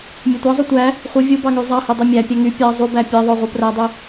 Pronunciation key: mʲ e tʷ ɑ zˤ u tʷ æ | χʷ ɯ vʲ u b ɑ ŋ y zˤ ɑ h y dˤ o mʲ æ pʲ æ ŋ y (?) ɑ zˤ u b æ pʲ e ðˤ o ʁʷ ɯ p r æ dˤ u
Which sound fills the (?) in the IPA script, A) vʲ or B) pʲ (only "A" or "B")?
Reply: B